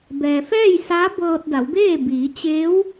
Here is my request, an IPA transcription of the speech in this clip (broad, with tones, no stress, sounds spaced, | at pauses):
b ɛː˩ f ɛː˥˨ j s a˧˥ b ɤː˧ t̚ d a˩˧ w b eː˥˨ b iː˩˧ t͡ɕ eː˧˥ w